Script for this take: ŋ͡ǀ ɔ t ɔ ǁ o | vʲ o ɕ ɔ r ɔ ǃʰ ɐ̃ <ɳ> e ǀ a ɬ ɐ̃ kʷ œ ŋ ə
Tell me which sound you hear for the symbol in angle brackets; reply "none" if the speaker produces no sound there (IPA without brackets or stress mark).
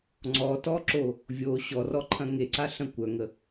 ŋ